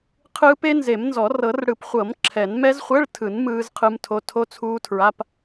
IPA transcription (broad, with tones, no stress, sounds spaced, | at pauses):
qʰ ɯː˦˥ p e˦˥ n z e˨˩˦ m n z ɔ˨˩˦ r ɤ˨˩˦ r ɽ ɯ˨˩˦ p χʷ ɤ˨˩˦ m ǁʰ ɛ˨˩˦ n m ɛ˦˥ z χʷ ɛ˧˥˧ ɭ tʰ ɯ˨˩˦ n m ɯː˦˥ z qʰ ɯ˦˥ m tʰ o˧˥˧ tʰ o˦˥ t͡sʰ uː˦˥ tʰ ɹ a˧˥˧ p